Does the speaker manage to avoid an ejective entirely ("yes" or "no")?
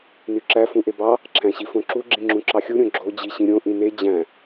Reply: yes